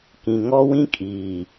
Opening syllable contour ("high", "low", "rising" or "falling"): low